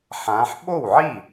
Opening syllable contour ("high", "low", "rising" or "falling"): rising